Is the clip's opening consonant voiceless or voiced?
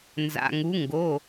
voiced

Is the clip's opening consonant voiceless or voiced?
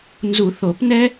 voiced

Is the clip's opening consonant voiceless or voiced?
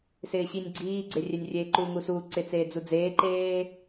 voiceless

